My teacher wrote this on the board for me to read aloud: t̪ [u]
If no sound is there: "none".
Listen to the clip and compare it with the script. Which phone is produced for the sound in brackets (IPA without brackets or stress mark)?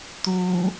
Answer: u